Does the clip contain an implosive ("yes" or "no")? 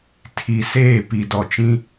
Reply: no